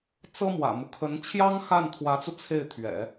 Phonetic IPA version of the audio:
t͡s ɤ˥ m w ä̰˨˩ m u˦ kʰ ə˧˥ n t͡ɕʰ j ɑ˥ ŋ x a˥˩ n t̪ʰ w ä˧˥ t͡s u˧ t͡sʰ e˥˩ ɪ̯ t̪ʰ ɥ ɛ̰˨˩˦

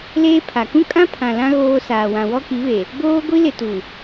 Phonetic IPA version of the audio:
l eː˦ pʰ a˨ k ũ˦ kʼ ã˦ pʰ ã˨ l ã˦ ɣ oː˦ s aː˨ w ã˨ w ɔ˦ k i˨˦ β e˨ | b oː˦ ɡʷ i˦ l ɪ˨ t u˨

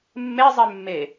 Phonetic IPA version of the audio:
mː e zˤ e mː e

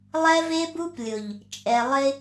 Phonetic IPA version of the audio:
lˠ ɛ˦ v e˦ b u˦ p lʲ ʊ˨ ʎ | t͡ʃʼ ɛ˨ lˠ ɪ˦

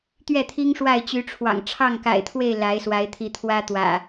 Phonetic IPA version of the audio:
t̪ ɥ ɛ˥˨ t̪ʰ i˦ ŋ ʂ w a˥˨ ɪ̯ t͡ɕ y˨˦ ʈ͡ʂʰ w ɑ̰˨˩ ŋ ʈ͡ʂʰ ɑ˥˨ ŋ k a̰˨˩ ɪ̯ t̪ʰ w e˥˨ ɪ̯ l a˨˦ ɪ̯ s w a˨˦ ɪ̯ t̪ʰ i˨˦ t̪ʰ w ä˦ t̪ w ä̰˨˩

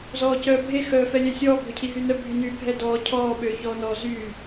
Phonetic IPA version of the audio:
z ɔː c œː bʱ e x œː f ɛ lʲ ɛ sʲ ɔː ɡʱ ø cʰ i ɦ y n œ bʱ y n y bʱ ɛ d ɔː cʰ ɔː ɓ øː ç ɔː n ɔ z y

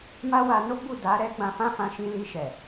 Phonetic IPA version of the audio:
m a˦ w a˧ n o˦ ɡ͡b u˦˨ d a˨˦ ɾ ɛ˦ ɡ͡b ã˧ f ã˦ f ã˧ ʃ ĩ˧ l i˧ ʃ ɛ˨

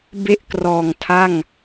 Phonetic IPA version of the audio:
b e˥˩ ʔ k r ɔː˨˩ ŋ tʰ a˥˩ ŋ

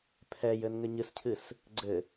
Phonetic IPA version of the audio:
pʰ ɛ j ɘ n ŋ ɘ ɲ ɨ s cʰ ɨ s | ɡ͡ǀ ɘ

